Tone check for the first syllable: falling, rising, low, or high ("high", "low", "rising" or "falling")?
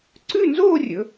falling